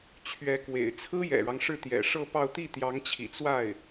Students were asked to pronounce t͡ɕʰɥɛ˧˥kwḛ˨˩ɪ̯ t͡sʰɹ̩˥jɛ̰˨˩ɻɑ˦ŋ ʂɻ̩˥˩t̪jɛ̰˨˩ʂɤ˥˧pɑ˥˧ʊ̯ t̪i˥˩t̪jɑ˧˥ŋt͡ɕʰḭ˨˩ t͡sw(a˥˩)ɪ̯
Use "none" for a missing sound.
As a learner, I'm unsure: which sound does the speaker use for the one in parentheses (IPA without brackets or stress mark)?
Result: a˥˩